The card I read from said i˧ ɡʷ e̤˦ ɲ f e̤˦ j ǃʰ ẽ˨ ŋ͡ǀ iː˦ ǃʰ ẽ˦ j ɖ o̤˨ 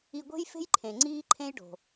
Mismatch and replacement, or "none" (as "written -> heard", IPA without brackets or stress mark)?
ɲ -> j